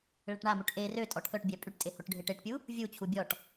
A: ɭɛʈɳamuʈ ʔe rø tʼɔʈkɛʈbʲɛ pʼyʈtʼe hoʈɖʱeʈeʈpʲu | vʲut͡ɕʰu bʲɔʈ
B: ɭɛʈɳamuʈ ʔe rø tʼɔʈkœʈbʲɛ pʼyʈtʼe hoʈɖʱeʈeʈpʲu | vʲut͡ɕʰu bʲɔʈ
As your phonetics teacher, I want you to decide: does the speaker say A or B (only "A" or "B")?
B